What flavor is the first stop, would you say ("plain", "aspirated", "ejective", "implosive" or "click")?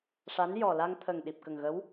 aspirated